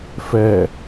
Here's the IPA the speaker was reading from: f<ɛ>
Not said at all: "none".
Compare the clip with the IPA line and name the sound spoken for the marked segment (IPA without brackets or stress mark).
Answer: ɛ